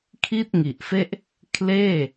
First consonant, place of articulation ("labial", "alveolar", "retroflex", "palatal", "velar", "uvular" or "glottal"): velar